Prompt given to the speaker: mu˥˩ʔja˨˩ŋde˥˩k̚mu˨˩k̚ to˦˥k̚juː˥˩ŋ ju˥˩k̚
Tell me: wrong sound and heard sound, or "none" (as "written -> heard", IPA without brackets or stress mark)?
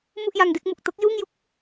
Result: a˨˩ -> a˧